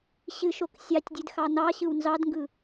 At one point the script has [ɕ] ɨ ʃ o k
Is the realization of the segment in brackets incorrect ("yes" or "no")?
no